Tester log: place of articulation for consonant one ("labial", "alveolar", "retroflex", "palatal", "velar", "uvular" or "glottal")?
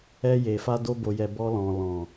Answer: palatal